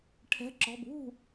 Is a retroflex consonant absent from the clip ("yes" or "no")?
no